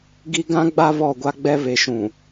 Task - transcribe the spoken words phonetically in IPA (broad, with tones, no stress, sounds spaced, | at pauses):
ɡ i˦ ɡ ã˦ ɡ͡b a˦ β ɔ˦˨ ɡʷ a˦ ɡ͡b ɛ˦ β e˨ ʃ ũ˨